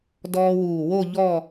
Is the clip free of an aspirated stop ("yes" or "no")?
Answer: yes